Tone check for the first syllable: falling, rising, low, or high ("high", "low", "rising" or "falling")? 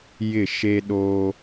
falling